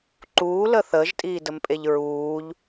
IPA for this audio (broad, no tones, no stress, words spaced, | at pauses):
ǃuːlə θəːʒtʼiːdəmpʼeʎ ɹuːʎ